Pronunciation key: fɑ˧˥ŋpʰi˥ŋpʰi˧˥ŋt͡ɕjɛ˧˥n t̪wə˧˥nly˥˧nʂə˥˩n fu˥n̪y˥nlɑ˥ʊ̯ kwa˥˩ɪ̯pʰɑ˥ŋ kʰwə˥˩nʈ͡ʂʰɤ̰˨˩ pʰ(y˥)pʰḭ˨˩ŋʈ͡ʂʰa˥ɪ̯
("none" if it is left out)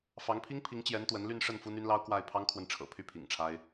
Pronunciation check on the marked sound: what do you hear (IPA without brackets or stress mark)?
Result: y˥